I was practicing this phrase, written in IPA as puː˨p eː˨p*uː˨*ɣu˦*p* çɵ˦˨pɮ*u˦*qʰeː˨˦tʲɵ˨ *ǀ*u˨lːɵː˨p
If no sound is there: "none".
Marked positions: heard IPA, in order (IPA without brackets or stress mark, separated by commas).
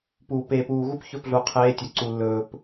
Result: uː˨, p, u˨, ǀ